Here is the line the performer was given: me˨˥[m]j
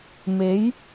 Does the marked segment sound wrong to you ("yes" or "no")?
yes